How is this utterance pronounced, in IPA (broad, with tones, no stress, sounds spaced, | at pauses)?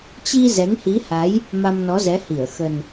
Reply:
t͡ɕ i˧ z ɛ˨˦ ŋ h i˨˦ h a˨˦ j | m a˧ m n ɔ˨˦ z ɛ˨˦ h i˧˩ ə̯ x ə˨˩ n